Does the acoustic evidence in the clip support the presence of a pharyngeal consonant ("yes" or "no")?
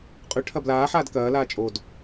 yes